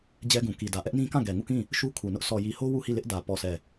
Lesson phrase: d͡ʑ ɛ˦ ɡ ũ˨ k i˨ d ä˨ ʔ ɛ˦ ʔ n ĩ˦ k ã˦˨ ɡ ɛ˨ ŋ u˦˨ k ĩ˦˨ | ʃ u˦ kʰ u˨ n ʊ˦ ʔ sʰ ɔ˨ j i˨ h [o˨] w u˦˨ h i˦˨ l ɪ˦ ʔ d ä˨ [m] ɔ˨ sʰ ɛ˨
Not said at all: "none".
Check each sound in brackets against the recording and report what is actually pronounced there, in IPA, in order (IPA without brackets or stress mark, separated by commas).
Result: o˦, p